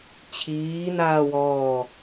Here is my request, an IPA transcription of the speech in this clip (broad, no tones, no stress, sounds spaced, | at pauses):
t͡ɕʰ iː n aː w ɔː